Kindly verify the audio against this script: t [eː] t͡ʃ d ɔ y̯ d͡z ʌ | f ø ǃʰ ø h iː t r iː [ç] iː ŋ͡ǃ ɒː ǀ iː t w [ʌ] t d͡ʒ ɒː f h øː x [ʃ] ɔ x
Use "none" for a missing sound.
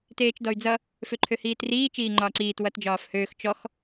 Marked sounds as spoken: eː, t͡ʃ, ʌ, t͡ʃ

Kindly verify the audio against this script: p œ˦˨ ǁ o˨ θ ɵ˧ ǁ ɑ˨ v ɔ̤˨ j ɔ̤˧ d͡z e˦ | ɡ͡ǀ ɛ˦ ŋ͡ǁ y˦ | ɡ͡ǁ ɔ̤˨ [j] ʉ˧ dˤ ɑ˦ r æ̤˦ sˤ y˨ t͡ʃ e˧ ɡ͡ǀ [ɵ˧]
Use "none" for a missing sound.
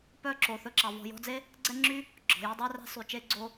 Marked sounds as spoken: j, o˧

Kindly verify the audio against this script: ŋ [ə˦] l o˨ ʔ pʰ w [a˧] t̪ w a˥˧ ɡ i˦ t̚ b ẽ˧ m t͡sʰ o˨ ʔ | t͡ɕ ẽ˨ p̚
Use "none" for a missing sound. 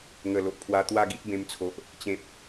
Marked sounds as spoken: ə˨˩, a˧

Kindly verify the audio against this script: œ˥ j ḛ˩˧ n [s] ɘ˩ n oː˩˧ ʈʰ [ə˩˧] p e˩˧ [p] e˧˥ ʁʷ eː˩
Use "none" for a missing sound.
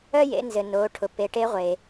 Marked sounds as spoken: z, ʊ˩˧, ʈ

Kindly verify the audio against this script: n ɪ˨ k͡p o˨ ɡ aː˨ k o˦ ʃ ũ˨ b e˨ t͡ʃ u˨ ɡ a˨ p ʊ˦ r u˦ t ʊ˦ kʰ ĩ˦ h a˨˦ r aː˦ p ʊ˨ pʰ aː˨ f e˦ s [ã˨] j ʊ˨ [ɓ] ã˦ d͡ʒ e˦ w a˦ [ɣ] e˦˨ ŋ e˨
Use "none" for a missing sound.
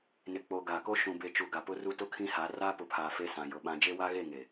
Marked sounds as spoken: ã˨, ɓ, ɣ

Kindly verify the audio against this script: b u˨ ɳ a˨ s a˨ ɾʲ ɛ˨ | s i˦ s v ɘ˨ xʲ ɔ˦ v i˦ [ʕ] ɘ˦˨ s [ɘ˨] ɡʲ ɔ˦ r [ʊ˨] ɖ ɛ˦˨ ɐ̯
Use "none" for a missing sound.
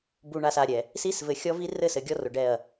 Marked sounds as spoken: r, ɘ˨, ʊ˨

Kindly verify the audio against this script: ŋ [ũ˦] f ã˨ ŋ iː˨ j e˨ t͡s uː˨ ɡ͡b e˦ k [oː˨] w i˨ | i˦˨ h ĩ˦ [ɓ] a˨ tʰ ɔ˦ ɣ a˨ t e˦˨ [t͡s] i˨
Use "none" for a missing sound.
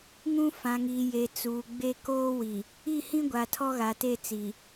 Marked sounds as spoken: ũ˦, oː˦, ɡʷ, t͡s

